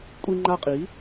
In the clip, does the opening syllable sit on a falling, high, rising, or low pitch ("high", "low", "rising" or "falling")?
high